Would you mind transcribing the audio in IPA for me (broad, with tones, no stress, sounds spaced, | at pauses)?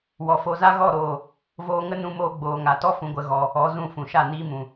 w ɔ˨ f o˧ z a˦ ɣ ɔ˦˨ ɾ oː˨ | v oː˧ ŋ ə˦ n ũ˧ m oː˧ ɡ͡b oː˨ ŋ a˨ t ɔ˦ f ũ˧ ɡʷ ə˧ ɣ ɔ˧ | ɔ˨˦ z ũ˦˨ f ũ˨ ʃ a˦˨ n iː˧ m ũ˨